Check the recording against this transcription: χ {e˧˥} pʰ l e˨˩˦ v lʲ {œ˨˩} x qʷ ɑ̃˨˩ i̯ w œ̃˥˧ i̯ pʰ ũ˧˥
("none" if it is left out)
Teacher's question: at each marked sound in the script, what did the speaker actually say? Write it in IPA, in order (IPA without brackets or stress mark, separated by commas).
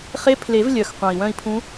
e˧˥, œ˨˩